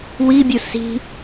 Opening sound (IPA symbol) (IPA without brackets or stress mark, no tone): w